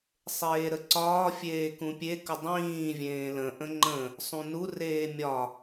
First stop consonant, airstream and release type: click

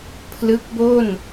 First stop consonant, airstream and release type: aspirated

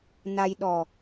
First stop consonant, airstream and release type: implosive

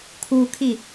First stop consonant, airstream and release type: aspirated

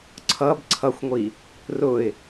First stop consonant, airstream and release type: click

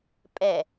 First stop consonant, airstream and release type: ejective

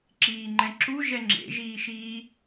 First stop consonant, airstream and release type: click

